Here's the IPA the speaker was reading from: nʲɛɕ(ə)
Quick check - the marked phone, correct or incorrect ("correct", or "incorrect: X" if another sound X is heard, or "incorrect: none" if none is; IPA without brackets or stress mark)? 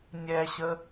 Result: correct